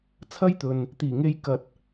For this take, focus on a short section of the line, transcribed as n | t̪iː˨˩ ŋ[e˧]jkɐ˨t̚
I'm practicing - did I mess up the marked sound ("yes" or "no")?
no